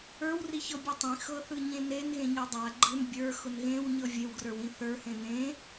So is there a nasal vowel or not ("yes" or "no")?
yes